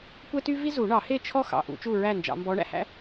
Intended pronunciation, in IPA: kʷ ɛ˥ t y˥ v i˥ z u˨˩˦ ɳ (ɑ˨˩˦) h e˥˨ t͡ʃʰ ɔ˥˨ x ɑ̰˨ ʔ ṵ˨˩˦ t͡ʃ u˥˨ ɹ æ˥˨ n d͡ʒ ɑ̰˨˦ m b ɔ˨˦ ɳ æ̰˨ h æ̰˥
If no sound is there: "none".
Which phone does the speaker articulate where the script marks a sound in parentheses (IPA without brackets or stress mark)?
ɑ˨˩˦